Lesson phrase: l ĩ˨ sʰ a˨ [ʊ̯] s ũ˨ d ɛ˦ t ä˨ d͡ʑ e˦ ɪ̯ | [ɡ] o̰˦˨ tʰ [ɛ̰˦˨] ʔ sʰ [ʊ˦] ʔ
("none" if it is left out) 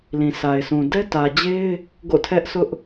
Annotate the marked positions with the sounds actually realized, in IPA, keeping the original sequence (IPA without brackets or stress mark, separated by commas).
ɪ̯, ɡ, ɛ˦, ʊ˦